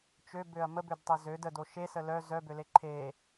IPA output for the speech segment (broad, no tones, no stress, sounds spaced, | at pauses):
t͡ʃ ø b ø ɐ̯ m ə b ø d tˤ e z ø d ə d o ʃ e s ə l œ z œ b ø l e ǃʰ e